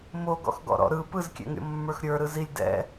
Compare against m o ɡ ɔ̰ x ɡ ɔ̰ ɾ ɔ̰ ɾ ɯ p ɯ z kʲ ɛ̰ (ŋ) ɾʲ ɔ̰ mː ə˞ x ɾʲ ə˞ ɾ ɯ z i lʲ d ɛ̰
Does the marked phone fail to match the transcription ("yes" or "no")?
no